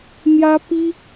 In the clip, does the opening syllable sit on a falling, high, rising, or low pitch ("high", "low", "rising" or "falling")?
high